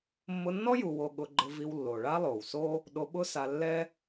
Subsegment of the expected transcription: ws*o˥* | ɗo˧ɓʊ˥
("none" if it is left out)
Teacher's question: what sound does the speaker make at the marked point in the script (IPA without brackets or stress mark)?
o˥